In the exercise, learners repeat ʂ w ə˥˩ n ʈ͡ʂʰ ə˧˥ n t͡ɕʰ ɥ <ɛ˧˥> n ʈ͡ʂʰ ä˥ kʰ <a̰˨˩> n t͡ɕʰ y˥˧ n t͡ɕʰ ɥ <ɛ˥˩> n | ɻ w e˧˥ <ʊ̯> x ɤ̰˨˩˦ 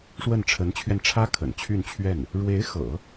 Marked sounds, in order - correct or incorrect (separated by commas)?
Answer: incorrect, incorrect, correct, incorrect